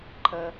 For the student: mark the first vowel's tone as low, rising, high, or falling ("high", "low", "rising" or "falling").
low